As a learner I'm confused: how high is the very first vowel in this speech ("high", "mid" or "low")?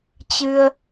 high